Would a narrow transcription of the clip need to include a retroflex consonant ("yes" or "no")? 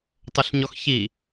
no